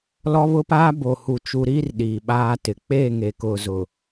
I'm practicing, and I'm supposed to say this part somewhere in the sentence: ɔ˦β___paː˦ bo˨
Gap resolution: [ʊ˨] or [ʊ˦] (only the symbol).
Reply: ʊ˦